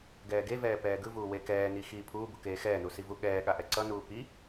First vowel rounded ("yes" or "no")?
no